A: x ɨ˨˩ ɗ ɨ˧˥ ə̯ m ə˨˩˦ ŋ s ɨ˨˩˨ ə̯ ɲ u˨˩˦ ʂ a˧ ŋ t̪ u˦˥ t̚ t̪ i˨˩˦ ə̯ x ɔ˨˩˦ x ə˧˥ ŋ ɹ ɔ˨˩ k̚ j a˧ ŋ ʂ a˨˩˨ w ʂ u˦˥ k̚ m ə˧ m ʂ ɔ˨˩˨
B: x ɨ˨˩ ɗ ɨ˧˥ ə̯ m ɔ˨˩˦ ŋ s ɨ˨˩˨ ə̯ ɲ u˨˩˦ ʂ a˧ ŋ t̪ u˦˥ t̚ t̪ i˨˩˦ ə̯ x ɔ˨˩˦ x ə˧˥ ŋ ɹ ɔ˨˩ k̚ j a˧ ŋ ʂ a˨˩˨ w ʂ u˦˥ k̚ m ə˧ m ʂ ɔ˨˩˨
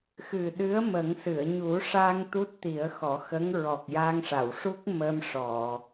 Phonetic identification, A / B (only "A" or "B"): A